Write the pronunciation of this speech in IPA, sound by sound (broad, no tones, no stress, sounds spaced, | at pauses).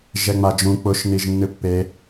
ʒ ɛ ŋ͡m a d͡ʒ ũ k͡p ʊ ʃ n i ʒ nː ɨ pː e